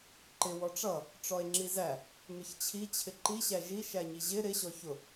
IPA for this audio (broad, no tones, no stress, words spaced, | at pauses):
ǃɪ wɔʈ͡ʂʌ | ʈ͡ʂɔe̯ŋ͡ǁizæ | mɪçt͡ɕʰi t͡ɕʰɪǃi ɕæʒi ʃæɲiʑɪ ɾɪ ɕɔçʊ